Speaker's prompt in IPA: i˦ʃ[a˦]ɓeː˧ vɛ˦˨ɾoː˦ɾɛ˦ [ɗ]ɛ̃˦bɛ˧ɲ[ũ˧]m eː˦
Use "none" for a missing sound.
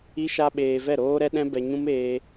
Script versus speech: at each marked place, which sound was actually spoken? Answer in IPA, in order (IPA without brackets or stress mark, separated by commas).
a˦, ɗ, ũ˦